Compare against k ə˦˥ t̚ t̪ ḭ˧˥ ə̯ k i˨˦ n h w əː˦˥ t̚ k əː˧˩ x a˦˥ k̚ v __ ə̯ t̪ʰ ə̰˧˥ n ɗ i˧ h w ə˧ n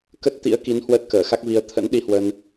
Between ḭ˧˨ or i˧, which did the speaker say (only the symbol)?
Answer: i˧